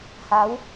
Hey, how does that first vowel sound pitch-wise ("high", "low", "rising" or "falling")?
rising